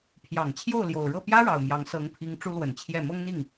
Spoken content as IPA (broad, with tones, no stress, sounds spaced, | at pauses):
pʰ j ɑ˨˩ ŋ t͡ɕʰ j o˥˩ ʊ̯ l j o˨˩ ʊ̯ ɻ ɤ˥˩ p j ä˥ ɻ ɑ˨˩ ʊ̯ m j ɑ˧˥ ŋ s ɤ˧˥ ŋ pʰ i˧˥ ŋ ʈ͡ʂ u˥ l w ə˨˩ n t͡ɕʰ j ɛ˥˩ m ɤ˥ ŋ n̪ i˥˩ ŋ